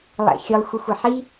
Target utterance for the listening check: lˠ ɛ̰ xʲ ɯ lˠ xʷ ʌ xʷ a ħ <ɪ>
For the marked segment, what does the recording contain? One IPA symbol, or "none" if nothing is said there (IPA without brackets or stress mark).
i